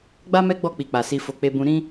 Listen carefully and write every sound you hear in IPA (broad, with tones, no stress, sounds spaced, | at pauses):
ɡ͡b a˦ m ɛ˦ ɡ͡b ɔ˦˨ k͡p i˧ k͡p a˨ s i˧ f o˧ k͡p e˧ b ũ˧ ɾ ĩ˦